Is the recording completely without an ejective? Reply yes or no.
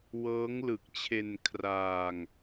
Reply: yes